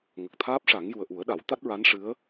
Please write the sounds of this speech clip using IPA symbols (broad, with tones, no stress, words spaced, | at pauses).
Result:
ŋə˨˩k̚t̪ʰaː˦˥p̚ʂa˨˩˦ŋ ju˨˩ə̯ʔu˨˩˦ə̯ɗa˨˩˦w t̪a˦˥t̚ɹa˧˥nʂɨ˧˥ə̯